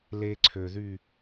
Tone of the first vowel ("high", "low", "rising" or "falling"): high